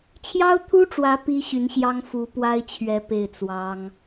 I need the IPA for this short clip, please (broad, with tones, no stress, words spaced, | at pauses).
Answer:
t͡ɕʰjɑ˥ʊ̯t̪ʰu˥ʈ͡ʂwä˧˥ pi˥ɕy˧˥nɕjɑ˥ŋ fu˧˥pwa˥ɪ̯t͡ɕʰɥɛ˧˥ pe˥˩ɪ̯t͡swɑ˥ŋ